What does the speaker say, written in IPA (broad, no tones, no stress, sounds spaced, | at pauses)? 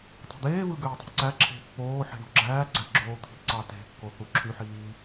tˤ i̤ d̪ eː v ɯ ɡ øː tˤ e̤ ǀ æ ǁʰ e̤ pː oː ħ i̤ ɳ o̤ ɡ͡ǁ æː ɡ͡ǀ æ ɡ͡ǁ oː t̪ʰ i̤ ǀ ɑ t e̤ kː o θ u ǁʰ y ħ iː